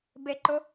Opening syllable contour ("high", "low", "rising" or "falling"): low